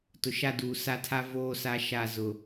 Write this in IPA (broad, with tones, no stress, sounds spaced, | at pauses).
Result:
t ʊ˨ ʃ a˦ d uː˨ s a˦ tʰ a˦ v oː˦ s a˦ ʃ a˦˨ z ʊ˨